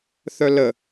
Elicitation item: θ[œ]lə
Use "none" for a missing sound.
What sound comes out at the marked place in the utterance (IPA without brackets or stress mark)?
œ